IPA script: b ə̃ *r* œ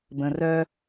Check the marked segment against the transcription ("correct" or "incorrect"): correct